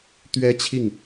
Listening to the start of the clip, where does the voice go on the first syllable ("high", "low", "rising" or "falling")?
high